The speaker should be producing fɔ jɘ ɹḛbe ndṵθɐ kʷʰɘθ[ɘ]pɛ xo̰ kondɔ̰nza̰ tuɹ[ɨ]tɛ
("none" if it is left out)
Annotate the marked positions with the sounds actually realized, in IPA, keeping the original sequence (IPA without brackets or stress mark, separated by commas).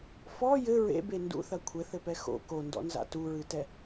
ɘ, ɨ